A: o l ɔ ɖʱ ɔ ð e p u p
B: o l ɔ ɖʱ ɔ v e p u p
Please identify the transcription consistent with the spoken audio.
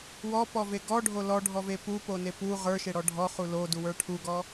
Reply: B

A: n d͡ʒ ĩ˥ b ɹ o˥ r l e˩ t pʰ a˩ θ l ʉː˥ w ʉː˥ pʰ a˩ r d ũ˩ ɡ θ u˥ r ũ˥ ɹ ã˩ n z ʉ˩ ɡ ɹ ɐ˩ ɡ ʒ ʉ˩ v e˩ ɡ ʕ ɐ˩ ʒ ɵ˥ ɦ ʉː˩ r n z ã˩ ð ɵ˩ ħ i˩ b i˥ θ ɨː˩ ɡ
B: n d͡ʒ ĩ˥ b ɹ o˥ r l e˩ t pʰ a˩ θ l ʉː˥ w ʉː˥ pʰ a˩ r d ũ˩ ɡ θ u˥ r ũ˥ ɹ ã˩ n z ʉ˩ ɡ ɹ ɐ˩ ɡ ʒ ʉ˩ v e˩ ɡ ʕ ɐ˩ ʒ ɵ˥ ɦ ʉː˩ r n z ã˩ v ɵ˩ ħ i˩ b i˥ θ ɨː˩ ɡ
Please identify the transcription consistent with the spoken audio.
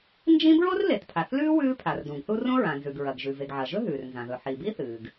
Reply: A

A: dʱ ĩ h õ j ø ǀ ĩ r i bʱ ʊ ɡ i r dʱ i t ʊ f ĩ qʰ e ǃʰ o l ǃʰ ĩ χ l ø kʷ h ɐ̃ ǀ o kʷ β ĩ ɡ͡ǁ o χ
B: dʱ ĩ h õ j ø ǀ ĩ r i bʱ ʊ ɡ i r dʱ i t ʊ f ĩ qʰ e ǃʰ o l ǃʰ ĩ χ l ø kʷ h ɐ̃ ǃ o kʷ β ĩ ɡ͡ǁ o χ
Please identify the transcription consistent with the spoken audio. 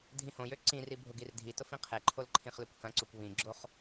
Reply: A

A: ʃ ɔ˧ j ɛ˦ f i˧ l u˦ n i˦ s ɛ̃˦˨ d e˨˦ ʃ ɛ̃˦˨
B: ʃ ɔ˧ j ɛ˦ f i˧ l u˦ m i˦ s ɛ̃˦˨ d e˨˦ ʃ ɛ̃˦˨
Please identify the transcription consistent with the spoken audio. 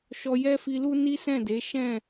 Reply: A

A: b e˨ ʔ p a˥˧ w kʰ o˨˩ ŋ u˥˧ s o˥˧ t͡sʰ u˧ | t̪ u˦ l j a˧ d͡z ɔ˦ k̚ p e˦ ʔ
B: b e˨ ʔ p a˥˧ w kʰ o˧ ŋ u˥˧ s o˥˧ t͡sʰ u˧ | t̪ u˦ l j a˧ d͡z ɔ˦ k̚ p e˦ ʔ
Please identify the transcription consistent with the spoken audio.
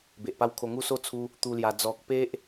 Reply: B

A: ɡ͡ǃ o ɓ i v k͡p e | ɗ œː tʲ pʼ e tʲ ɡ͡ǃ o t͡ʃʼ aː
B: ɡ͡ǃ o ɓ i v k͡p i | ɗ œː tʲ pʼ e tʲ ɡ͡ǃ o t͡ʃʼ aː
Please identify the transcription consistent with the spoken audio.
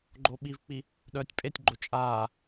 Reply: B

